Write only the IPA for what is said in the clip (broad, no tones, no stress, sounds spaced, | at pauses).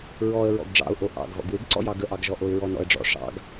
ɹ ɔ ə̯ ɹ ɔ̰ ɡ ɖ͡ʐ ɑ̰ ʊ̯ ʔ o ʔ ɑ̰ ɡ ɣ ɔ̰ ɡ w ɪ ɡ ǀ ɔ̰ j ɑ ɡ ə ʔ ɑ ɡ ʒ ɔ ʔ o ɪ̯ ɹ ɔ n ɔ̰ ə̯ ɖ͡ʐ ɔ̰ ʂ ɑ̰ ɡ